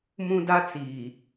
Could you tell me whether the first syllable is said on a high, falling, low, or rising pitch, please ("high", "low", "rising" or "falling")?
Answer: high